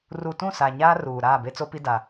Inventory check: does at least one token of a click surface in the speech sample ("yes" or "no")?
no